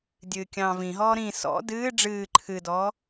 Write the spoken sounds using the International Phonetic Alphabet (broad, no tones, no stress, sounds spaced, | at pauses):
dʲ ɨː kʲ ɑ̃ː v ĩ ɦ ɔː ɾ ĩ s ɔ̰ d ɨː ɖ͡ʐ ɨː ǃʰ ɨ d ɔː